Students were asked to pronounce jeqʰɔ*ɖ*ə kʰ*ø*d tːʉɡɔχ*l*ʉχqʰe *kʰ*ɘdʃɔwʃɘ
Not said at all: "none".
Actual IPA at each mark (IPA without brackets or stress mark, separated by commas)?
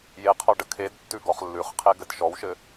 ɖ, e, lː, ɡ